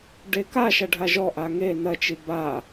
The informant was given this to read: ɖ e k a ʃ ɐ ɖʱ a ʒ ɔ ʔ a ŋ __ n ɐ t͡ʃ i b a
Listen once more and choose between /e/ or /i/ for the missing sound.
e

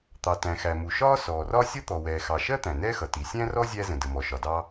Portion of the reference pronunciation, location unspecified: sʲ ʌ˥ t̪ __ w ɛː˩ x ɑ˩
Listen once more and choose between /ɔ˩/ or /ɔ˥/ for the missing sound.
ɔ˩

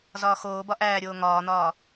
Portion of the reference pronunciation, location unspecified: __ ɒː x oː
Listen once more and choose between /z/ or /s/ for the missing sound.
z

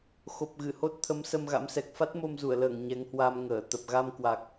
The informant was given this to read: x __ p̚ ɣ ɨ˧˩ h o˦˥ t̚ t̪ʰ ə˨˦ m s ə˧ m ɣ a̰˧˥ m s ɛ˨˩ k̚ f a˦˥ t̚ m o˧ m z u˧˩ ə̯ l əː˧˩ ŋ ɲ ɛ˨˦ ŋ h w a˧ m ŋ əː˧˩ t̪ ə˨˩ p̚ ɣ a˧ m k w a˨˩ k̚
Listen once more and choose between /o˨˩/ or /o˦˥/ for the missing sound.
o˨˩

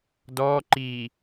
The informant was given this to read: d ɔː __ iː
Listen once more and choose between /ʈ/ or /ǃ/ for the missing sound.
ǃ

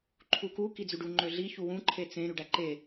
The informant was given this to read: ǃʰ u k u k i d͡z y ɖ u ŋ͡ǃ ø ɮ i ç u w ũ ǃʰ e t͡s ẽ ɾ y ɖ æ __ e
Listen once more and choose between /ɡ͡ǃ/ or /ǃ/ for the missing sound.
ǃ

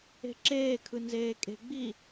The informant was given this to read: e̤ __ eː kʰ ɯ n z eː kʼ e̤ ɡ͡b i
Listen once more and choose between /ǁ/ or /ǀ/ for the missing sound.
ǁ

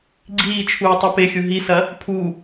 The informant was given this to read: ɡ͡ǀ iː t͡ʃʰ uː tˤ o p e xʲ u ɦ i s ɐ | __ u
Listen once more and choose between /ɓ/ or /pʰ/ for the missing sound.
pʰ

